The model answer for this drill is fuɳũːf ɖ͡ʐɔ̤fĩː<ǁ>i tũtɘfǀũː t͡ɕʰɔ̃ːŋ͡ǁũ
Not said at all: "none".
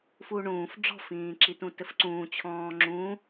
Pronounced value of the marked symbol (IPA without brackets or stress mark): ǁ